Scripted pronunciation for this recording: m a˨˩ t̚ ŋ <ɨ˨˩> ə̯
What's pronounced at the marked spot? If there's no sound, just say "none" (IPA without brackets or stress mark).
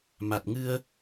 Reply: ɨ˧